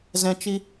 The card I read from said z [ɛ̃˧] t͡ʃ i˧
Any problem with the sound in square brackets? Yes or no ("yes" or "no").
no